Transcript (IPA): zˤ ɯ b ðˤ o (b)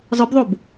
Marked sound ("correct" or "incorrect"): correct